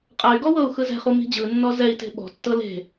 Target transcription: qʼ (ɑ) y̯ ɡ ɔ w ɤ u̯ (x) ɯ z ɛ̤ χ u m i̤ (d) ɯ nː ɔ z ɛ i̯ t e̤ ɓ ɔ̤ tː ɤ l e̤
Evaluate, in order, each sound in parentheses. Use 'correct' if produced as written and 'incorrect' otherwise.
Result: incorrect: a, correct, incorrect: d͡ʑ

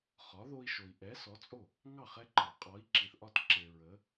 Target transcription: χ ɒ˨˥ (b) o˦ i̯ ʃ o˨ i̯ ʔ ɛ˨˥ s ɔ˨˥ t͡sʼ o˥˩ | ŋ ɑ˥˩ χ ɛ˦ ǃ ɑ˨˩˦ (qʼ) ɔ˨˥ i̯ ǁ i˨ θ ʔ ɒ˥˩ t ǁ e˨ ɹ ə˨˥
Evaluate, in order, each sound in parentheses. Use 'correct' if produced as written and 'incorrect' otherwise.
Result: incorrect: ð, correct

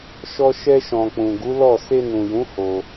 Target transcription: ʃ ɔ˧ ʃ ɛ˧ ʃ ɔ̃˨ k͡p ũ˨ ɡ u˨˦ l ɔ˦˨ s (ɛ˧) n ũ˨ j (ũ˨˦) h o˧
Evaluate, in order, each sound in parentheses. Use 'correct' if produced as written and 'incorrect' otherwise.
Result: incorrect: e˧, correct

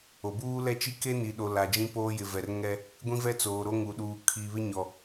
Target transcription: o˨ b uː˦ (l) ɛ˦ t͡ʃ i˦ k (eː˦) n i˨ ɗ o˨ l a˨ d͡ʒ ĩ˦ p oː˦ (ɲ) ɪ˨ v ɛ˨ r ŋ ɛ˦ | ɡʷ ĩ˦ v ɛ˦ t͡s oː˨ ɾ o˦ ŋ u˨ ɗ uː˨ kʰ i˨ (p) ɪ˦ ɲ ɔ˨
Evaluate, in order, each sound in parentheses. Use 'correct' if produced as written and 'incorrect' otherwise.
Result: correct, incorrect: e˦, incorrect: j, incorrect: β

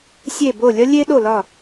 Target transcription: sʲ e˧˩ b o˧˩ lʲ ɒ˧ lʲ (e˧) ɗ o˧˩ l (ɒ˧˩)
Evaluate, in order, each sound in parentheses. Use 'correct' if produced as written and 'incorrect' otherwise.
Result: correct, correct

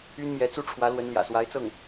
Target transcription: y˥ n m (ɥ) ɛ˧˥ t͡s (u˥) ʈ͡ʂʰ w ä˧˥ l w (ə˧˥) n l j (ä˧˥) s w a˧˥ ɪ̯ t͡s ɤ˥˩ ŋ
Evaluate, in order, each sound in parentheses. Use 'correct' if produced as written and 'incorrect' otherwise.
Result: incorrect: j, correct, correct, incorrect: ä̰˨˩

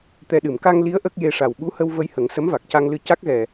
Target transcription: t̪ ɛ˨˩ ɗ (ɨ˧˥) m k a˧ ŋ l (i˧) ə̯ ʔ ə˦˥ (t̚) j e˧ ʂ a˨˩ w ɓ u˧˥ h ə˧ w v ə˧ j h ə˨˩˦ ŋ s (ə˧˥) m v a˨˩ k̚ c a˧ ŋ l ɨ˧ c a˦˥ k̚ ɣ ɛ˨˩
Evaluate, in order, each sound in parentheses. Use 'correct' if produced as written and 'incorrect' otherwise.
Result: incorrect: ɨ˨˩˨, incorrect: i˧˥, incorrect: k̚, correct

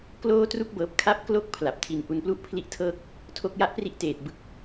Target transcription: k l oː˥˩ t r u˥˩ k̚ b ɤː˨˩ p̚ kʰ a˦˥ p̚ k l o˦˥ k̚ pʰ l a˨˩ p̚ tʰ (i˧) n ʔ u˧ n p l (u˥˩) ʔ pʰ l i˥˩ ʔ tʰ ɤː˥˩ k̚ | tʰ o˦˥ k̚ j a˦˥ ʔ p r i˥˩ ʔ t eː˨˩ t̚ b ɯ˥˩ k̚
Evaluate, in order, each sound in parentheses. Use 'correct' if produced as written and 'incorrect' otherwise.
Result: correct, correct

